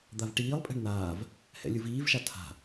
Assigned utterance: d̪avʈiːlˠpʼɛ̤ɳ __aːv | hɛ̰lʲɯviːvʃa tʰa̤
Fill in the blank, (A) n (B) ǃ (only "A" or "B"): A